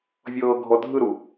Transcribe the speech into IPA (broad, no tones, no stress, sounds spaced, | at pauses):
vʲ ɤː ɡʱ ɔ dʱ ɯ ɾ u